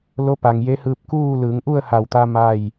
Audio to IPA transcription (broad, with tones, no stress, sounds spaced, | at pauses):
l o˧˥ p a˩ ŋ j e˧˥ h ɯː˧ p̚ k uː˥˨ l ɯː˩˧ ŋ ʔ u˥˨ ə̯ h a˧˩ w t̪ a˧ m a˥˨ j